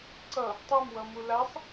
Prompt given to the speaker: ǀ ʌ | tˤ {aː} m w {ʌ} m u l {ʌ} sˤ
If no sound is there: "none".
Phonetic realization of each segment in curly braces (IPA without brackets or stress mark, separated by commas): a, ʌ, a